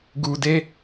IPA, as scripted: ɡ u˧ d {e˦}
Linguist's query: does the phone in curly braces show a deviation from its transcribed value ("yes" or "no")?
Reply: no